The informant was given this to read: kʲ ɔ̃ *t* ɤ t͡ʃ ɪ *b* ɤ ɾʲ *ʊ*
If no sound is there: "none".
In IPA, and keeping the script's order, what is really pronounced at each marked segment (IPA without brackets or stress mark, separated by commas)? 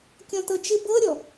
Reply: t, b, ɔ